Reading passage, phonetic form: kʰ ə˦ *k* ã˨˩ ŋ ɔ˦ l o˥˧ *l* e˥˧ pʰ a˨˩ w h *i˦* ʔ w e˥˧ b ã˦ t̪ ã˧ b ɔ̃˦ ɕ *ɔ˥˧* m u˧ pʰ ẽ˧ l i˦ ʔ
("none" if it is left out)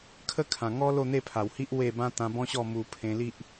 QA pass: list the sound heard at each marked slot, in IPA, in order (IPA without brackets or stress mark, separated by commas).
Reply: kʰ, n̪, i˦, ɔ˥˧